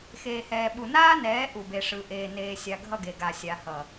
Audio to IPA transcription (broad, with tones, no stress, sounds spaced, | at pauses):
x eː˨ h ɛː˨ ɓ u˨ n aː˦ n ɛː˨˦ ʔ u˨ b e˨ ʂ ɯ˨ ʔ eː˨ n eː˨ sʲ a˨ ɡʱ ʌ˦˨ ɡ e˨ ɡ a˨ sʲ a˨ h ʌ˨